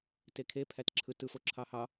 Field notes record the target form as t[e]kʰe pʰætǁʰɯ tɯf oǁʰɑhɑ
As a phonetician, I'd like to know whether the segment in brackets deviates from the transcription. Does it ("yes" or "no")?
no